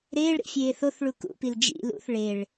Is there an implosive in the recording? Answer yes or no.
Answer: no